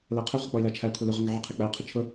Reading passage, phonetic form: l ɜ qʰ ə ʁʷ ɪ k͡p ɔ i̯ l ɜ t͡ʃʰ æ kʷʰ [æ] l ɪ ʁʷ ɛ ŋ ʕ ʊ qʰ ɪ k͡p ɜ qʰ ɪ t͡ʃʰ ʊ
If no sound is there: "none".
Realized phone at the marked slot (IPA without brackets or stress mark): ɛ